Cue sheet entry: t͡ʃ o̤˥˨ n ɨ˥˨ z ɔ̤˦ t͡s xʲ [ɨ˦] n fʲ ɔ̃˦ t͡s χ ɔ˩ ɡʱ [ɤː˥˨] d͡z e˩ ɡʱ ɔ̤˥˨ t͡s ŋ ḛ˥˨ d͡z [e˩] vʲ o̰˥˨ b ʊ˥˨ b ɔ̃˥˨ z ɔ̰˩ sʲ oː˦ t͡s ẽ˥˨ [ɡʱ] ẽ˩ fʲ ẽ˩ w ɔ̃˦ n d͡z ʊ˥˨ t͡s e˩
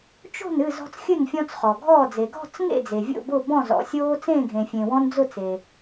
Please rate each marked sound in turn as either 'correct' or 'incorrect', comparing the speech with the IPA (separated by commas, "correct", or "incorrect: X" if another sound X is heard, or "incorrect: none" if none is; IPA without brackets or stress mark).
incorrect: ɨ˥˨, incorrect: ɔː˥˨, correct, correct